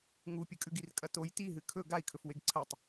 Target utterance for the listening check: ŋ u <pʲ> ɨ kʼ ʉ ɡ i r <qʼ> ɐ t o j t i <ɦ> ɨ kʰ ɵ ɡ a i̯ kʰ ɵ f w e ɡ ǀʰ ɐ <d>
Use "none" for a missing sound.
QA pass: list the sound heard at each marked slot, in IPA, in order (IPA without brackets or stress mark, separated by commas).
pʲ, kʼ, ɦ, tˤ